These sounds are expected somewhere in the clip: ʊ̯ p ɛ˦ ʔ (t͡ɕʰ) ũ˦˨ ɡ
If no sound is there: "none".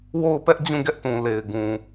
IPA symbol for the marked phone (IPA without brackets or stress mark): d͡ʑ